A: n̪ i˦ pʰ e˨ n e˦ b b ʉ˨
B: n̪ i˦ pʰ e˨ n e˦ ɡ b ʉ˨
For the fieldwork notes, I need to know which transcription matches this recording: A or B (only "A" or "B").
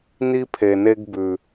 B